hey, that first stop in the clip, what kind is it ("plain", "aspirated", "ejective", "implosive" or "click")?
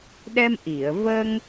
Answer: implosive